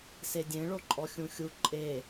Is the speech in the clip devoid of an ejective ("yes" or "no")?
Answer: no